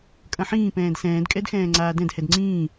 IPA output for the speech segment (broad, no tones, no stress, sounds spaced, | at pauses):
kʼ ɐ̃ ħ ĩː p ɛ̃ː d s ɛ̃ː d kʼ ɛ d x ɛ̃ː ŋ͡ǀ aː d ɛ̃ d h ɛ d ŋ͡ǀ ĩː